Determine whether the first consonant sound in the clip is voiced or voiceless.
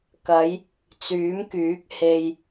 voiceless